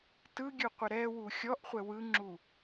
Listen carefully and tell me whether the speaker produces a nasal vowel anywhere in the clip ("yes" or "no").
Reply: no